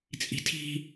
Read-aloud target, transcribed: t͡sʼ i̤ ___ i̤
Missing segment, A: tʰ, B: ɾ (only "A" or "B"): A